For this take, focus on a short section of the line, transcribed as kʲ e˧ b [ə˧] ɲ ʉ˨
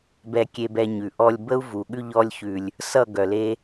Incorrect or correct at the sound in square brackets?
incorrect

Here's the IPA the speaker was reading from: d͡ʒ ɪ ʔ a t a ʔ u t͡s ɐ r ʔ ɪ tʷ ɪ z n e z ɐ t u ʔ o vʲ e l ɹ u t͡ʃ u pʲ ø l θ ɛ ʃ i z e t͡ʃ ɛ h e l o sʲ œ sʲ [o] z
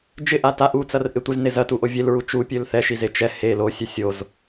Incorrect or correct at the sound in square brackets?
correct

